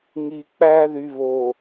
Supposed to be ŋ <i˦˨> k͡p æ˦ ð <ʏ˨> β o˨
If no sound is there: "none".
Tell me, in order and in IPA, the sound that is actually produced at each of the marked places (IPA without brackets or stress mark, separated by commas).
i˨, y˨